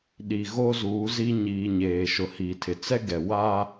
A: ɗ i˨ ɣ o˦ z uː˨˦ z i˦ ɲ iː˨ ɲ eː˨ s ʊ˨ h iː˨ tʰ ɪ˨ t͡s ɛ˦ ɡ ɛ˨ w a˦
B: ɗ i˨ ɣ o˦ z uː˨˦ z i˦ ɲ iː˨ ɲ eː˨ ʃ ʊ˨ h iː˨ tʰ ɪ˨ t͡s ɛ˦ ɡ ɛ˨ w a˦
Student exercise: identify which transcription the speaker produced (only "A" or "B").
B